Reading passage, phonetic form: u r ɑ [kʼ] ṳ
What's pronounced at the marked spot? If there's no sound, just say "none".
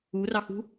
x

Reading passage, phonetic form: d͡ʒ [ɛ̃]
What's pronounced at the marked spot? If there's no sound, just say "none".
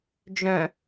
œ̃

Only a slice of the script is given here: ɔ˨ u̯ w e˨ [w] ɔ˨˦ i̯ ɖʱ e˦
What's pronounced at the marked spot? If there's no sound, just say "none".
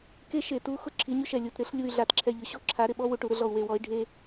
w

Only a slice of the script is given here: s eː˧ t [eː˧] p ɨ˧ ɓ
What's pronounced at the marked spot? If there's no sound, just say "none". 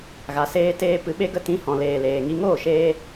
eː˧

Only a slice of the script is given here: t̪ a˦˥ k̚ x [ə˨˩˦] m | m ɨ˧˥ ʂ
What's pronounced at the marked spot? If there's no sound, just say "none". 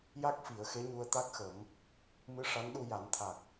ə˨˩˦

